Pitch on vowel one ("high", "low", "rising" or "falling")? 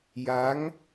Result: rising